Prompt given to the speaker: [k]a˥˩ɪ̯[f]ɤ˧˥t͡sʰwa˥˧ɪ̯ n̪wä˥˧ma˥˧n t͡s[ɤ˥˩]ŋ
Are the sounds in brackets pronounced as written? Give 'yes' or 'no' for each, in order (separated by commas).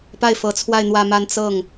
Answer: no, yes, yes